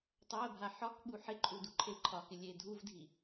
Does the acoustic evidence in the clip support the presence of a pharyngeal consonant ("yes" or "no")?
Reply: yes